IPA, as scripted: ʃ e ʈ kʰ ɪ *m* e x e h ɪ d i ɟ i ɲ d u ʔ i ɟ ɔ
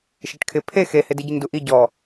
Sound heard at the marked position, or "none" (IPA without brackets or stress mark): pʰ